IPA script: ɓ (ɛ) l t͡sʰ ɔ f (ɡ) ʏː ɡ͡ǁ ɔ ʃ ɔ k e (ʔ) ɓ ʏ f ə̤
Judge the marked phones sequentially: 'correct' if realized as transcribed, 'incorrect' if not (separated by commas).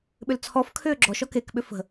incorrect, incorrect, incorrect